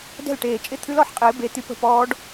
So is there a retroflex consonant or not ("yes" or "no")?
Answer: yes